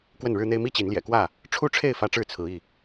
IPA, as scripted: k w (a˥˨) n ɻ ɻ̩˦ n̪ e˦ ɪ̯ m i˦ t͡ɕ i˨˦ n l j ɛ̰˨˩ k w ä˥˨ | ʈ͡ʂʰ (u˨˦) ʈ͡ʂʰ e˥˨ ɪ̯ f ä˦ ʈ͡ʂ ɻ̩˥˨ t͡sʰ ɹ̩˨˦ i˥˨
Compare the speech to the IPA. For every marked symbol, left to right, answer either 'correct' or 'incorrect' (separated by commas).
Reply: incorrect, incorrect